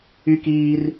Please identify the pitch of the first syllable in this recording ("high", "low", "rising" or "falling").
high